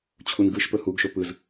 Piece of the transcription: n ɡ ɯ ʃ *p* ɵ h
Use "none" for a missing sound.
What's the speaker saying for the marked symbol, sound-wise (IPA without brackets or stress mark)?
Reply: p